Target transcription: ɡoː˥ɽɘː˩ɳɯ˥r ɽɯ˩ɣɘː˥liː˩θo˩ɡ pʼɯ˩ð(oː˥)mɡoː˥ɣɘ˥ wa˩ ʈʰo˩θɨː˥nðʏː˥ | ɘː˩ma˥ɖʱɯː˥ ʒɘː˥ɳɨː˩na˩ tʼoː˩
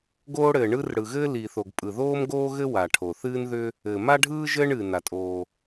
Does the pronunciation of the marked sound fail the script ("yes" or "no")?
no